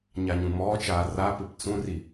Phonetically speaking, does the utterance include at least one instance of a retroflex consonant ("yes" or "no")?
no